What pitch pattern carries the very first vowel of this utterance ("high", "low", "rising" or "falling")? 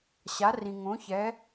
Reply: rising